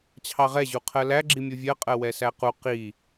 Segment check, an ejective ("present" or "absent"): present